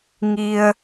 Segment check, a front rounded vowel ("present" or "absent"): absent